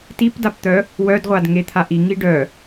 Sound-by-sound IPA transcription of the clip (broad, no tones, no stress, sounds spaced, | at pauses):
t i p d a p t̪ œ | w œ d ʁʷ a d ŋ e t̪ʰ a ʔ i ŋ i ɖ œ